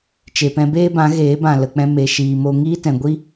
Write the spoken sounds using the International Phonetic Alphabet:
t͡ʃ e˨ p ɛ̃˧ b eː˦ b ã˨˦ ɣ eː˨˦ b ã˨ l ə˨ k͡p ɛ̃˧ m e˨ ʃ iː˨ m o˧ ŋ iː˦ t ɛ̃˨ ɡʷ i˦

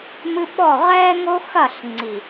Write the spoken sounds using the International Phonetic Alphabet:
m ɨ˦ ɓ ɔ˦˨ ʁ ɛː˦ ŋ o˦ x ɐ˦˨ ɬ ŋ͡ǀ i˨

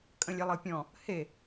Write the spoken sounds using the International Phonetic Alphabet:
kʼ ə̃ lʲ e lˠ ɤ pʲ ɔ̃ | h e

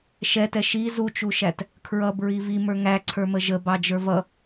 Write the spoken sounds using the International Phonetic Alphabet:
ʃ ɛ t ɛ ʃ i z u t͡ʃ u ʃ æ t | kʰ ɹ ʌ b ɹ i v i m ə˞ ŋ æ ǀʰ ə˞ m ə ʒ ə b ɑ d͡ʒ ə˞ v ʌ

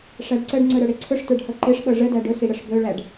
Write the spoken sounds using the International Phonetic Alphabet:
ʂ æ ɖ ǀ ə ɖ ŋ͡ǀ ɵ ɾ ə˞ ɽ e ǀʰ ɵ ʂ t ə˞ ɖ h ɤ ǃ e ʂ ɓ ɤ ʐ ə d æ ɖ ɵ s i ɽ ə ʂ b ɵ ɭ æ ɖ

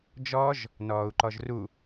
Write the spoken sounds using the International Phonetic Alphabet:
d͡ʒ ɔ ʒ | n ɔː u̯ ǃ ɔ ʒ r u

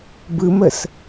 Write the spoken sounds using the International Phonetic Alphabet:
b ɯ m ə s

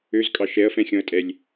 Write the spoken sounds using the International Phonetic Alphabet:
ø z kʼ ɑ ʃ ɛ ɐ̯ f ɛ̃ xʲ ɔ̃ ɐ̯ tʼ ɛ lʲ

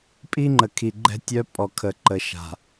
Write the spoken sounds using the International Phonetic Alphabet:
pʼ i˦ ŋ͡ǃ ə˨ kʰ i˨ ɡ͡ǃ ɛ̤˦ tʲ œ˦ pʼ ɔ˨ kʰ ə˨ ǃ ə˨ ʃ a̤˨

